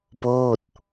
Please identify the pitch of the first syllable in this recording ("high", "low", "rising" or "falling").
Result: falling